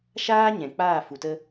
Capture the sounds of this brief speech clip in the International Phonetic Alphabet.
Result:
ʃaː˦ ɲɛ̃˨ k͡paː˦˨fu˨tə˦

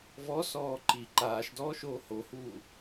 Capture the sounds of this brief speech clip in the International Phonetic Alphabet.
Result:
vɔsɔː ǃi ǃaːʃdɔːʃoː hohuː

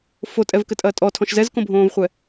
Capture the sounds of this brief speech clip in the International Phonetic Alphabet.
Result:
fotʼɛvkɘtʼɐː tʼɔtʰɔ̃ʃ zɛzkõbʱõːvχʷɛ

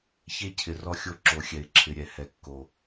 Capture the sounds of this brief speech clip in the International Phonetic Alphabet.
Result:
çe˦cʰɪ˨rɔ˦xʲo˦ ǁo˨ xʲɛ˨ɪ̯ǁʰɪ˨ɾʲɛ˨ hɛ˨kːo˨

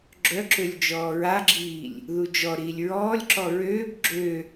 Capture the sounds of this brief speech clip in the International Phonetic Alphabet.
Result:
ɡ͡ǁœǁølʲ d͡ʒɔːɹaɡ͡ǁiːlʲ | ðud͡ʒɔɾiːlʲ ɹɔːlʲǁɔ ɹøːb ɡ͡ǁø

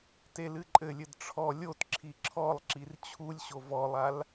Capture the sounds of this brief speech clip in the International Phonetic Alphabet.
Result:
telɨǃʼɘlʲɘd ʈ͡ʂʰɔ lʲotǁʰi ǁʰɔlˠǁir t͡ɕʰulʲɕo vɔlˠal

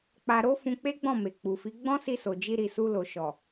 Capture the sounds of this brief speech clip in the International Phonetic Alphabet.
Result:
k͡pa˧ɾo˦ fũ˧k͡pe˦ɡ͡bɔ̃˦˨me˨ k͡pu˨fi˨˦ ɡ͡bɔ̃˦si˧so˨ d͡ʒi˧ɾi˨su˧lo˨ ʃɔ˨

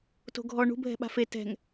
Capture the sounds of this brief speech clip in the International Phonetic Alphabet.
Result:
to̤ɡʱɔ ɳṳ bʱɛ̤ɓa̤fe tɛ̤ŋ

